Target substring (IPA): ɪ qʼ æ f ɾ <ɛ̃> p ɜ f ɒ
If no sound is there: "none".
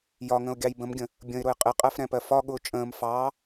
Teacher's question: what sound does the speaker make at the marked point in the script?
ɛ̃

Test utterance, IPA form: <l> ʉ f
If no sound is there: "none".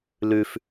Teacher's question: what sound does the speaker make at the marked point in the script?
l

